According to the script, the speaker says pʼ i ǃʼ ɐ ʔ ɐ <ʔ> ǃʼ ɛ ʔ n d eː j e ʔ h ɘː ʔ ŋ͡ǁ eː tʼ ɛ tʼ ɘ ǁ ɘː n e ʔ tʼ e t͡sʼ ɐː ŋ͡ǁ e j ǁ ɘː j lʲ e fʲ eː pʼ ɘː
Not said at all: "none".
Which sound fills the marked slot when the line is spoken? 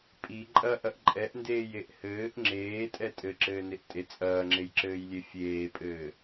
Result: ʔ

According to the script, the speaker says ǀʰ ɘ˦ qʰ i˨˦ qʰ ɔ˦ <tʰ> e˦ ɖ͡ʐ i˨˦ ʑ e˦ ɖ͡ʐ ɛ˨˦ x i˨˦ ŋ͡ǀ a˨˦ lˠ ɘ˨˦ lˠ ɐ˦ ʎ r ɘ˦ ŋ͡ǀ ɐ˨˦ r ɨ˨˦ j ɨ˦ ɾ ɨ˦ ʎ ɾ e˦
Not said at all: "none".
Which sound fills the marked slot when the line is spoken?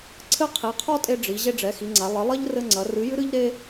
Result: tʼ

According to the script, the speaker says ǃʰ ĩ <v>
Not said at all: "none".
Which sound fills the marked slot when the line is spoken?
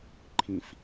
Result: f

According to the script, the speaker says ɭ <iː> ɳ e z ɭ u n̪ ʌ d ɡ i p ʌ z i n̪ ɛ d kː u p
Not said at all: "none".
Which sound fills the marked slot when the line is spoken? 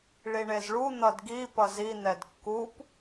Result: i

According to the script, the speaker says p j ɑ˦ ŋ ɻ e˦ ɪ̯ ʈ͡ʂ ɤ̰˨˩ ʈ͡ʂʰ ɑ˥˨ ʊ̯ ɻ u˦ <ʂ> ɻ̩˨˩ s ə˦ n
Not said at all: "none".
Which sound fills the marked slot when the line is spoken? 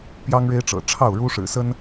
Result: ʂ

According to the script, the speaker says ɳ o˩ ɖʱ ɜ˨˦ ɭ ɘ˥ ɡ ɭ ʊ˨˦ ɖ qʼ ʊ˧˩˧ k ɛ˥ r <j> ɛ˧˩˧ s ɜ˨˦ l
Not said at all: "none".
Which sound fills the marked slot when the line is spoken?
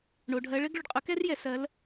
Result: j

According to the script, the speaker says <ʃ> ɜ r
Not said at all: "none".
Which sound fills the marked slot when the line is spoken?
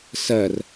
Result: s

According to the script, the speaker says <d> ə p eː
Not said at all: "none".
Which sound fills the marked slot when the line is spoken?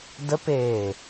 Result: d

